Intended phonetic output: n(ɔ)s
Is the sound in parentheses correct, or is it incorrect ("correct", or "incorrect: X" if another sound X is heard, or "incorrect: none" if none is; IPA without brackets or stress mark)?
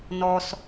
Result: correct